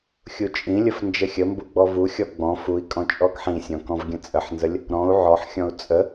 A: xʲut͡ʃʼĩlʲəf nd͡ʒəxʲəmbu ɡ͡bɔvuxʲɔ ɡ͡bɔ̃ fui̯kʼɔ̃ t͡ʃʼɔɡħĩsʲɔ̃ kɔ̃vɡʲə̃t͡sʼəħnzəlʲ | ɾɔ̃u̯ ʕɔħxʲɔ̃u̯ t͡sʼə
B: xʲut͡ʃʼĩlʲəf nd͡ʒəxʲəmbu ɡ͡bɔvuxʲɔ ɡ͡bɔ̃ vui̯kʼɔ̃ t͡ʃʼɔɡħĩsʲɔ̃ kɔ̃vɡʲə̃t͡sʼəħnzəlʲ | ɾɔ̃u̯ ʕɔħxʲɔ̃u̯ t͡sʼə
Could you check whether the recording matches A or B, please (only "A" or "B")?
A